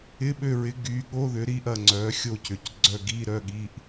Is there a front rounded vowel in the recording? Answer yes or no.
yes